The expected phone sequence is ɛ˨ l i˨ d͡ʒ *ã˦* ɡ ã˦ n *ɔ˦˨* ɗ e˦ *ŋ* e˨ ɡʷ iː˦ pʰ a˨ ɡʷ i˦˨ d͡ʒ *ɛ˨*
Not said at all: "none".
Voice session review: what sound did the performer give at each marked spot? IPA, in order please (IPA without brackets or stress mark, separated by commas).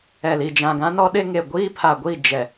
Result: ã˨, ɔ˦, ŋ, ɛ˨